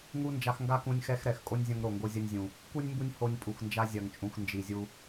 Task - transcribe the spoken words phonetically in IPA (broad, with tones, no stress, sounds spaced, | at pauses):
ŋ u˥ n d͡ʒ a˦ x ŋ ɡ a˥ k ũ˦ nʲ x ɛ˦ x ɾ ɛ˩ x kʼ o˥ nʲ zʲ õ˦ ŋ ɾ o˨ ŋ ɡ o˥ zʲ ɐ˥ nʲ zʲ ũ˩ | k u˥ nʲ m b u˦ nʲ h o˦ nʲ pʼ u˨ x n d͡ʒ a˥ zʲ ɐ˨ ŋ t͡ʃʼ ũ˨ x n d͡ʒ i˩ zʲ u˨